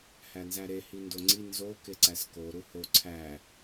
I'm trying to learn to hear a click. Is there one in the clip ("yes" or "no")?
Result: yes